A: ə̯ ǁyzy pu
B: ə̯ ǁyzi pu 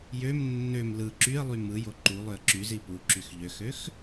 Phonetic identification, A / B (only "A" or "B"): B